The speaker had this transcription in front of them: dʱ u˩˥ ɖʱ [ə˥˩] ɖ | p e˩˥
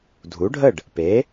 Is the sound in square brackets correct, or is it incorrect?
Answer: correct